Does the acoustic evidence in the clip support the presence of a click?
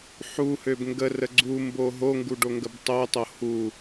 yes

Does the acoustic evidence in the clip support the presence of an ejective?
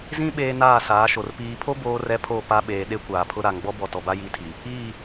no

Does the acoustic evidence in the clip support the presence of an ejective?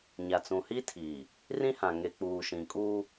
yes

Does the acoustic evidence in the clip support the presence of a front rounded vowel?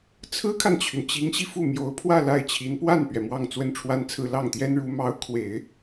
yes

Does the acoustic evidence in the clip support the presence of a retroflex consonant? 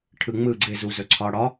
yes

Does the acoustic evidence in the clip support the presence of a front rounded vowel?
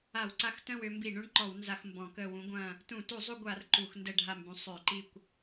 yes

